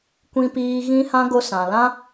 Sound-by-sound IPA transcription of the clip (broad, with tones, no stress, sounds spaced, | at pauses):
kʷ ĩ˧ p iː˧ ɣ ĩ˦ h ã˦ ɡ o˧ s ã˨ l ã˦